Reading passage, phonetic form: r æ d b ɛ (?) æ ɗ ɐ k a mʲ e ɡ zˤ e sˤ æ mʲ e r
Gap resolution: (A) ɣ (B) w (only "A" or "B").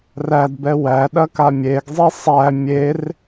B